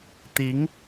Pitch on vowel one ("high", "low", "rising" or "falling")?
rising